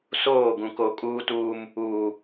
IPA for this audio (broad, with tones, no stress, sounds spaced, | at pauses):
s oː˦˨ ɡ ũ˨ k o˨ kʼ uː˦ t uː˦ m | uː˨